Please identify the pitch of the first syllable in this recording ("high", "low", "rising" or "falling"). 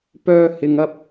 high